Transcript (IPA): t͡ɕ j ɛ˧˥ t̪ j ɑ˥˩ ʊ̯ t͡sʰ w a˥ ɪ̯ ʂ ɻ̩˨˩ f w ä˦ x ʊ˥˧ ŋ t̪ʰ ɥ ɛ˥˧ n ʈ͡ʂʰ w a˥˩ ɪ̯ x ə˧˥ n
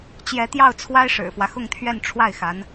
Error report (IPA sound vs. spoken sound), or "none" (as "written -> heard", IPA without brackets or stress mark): ə˧˥ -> a˧˥